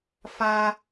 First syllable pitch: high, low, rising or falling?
high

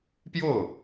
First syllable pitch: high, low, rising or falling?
falling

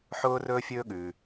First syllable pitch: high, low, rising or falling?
high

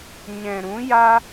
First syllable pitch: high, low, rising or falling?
low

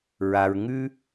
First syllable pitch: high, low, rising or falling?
low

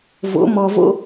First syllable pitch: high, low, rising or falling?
rising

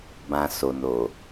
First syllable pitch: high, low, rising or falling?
low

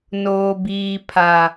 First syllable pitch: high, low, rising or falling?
low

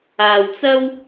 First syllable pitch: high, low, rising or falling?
low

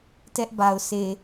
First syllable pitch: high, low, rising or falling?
high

